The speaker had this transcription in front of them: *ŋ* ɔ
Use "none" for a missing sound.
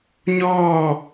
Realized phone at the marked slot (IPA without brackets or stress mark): ɲ